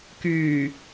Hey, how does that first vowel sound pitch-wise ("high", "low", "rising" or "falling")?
low